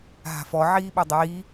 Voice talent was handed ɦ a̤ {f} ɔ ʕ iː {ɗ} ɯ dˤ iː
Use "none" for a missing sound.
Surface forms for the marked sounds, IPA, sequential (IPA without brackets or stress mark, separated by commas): f, ɓ